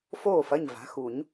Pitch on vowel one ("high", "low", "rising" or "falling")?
falling